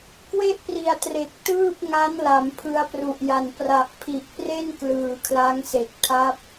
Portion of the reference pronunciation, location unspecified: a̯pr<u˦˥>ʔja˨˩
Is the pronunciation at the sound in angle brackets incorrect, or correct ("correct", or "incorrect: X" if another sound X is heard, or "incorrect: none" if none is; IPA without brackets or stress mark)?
incorrect: u˨˩